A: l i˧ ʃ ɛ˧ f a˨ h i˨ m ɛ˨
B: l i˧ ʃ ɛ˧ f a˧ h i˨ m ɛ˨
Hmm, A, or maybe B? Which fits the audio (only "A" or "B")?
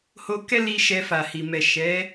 A